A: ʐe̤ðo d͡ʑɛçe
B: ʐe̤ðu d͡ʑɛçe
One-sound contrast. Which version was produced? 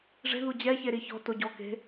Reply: B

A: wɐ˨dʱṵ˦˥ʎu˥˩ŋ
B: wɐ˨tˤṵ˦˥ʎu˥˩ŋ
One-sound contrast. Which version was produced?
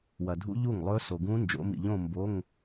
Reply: A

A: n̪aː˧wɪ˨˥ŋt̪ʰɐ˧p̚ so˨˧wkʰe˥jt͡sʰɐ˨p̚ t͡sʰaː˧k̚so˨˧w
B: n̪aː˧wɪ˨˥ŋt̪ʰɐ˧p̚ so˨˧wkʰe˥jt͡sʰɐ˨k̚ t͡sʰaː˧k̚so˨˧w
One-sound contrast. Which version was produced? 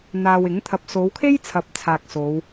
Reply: A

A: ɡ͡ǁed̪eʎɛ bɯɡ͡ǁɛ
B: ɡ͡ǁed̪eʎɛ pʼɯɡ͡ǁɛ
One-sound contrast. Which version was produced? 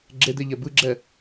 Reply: A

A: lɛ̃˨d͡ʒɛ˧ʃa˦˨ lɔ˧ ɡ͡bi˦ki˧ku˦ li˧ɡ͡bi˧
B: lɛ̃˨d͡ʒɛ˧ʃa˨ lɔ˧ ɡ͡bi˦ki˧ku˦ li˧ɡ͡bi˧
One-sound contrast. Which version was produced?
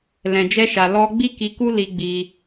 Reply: B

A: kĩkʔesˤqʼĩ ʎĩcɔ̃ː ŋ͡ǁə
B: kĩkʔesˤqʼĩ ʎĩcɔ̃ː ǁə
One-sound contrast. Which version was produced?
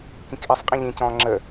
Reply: A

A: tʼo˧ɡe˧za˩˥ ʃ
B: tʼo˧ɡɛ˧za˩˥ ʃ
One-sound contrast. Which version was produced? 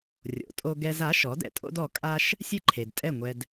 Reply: B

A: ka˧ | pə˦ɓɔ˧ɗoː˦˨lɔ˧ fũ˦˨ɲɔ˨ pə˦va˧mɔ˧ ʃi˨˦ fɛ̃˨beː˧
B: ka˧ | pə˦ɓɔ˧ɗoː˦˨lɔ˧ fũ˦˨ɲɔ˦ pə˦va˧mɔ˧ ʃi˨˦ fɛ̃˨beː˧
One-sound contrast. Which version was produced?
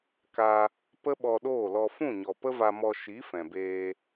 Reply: A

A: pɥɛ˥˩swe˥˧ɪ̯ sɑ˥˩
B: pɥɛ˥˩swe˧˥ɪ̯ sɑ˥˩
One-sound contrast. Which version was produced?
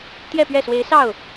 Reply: B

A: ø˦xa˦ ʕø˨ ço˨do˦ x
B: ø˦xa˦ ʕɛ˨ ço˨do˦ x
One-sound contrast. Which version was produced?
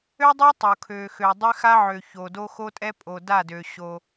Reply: A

